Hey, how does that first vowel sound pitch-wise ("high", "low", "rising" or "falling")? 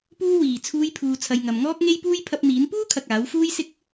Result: high